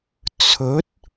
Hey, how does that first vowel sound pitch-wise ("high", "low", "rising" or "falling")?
rising